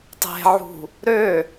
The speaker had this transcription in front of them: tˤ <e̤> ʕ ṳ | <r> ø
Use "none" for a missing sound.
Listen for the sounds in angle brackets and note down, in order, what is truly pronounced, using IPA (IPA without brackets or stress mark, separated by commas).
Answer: e̤, ɾ